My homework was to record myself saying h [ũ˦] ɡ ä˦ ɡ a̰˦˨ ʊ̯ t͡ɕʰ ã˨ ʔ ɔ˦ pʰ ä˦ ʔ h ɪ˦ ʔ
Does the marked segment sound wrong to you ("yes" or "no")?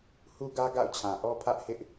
yes